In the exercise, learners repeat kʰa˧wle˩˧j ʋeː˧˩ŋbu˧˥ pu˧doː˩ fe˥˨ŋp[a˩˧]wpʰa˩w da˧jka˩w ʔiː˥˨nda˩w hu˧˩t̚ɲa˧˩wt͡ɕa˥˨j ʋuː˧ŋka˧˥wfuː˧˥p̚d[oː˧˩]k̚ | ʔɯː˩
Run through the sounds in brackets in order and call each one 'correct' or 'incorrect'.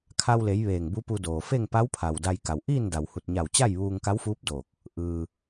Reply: incorrect, correct

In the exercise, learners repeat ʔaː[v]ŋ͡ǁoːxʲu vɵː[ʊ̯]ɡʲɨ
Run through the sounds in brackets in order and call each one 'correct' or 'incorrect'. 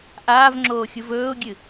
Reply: correct, correct

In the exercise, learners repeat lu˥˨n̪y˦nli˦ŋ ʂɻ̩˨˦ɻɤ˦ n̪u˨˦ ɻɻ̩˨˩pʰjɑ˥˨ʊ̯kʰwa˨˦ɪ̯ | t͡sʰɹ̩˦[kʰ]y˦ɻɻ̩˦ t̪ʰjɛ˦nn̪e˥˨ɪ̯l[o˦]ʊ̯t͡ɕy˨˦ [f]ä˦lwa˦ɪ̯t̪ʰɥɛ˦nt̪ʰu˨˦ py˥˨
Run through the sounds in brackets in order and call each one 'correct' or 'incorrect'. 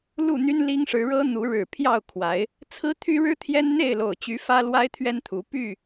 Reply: incorrect, incorrect, correct

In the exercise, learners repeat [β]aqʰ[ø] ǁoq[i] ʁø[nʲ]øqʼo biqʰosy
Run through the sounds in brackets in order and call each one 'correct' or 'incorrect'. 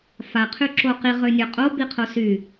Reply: incorrect, incorrect, correct, correct

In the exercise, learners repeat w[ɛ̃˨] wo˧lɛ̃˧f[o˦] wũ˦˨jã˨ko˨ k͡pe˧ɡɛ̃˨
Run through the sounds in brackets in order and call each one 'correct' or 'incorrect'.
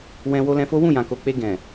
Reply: incorrect, correct

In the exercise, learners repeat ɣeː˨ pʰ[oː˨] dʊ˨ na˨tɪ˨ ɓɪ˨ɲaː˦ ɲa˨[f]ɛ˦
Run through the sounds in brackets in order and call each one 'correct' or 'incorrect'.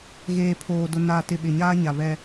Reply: correct, incorrect

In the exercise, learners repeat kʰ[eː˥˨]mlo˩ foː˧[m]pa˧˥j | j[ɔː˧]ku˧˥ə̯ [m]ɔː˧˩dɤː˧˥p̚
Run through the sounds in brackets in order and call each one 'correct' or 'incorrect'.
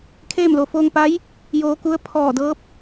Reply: correct, incorrect, incorrect, incorrect

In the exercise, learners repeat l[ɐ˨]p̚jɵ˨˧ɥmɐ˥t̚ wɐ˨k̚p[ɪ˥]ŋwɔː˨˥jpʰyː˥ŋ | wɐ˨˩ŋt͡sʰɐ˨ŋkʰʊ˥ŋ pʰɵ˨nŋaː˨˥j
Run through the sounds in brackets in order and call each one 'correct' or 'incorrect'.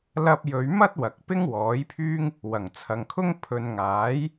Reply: incorrect, correct

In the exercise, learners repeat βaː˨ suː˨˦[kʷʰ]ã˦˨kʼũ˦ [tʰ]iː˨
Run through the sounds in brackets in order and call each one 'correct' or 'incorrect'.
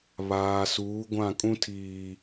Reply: incorrect, correct

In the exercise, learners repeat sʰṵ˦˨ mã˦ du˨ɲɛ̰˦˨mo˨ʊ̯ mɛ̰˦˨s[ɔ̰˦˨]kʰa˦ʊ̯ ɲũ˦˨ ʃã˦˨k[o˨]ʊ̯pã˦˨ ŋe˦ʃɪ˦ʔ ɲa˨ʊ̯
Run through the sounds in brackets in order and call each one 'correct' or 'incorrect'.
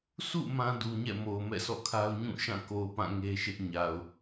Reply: correct, correct

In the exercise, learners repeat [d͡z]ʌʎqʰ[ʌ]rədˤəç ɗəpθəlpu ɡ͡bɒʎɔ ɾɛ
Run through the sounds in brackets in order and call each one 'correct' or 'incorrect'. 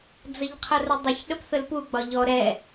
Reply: correct, correct

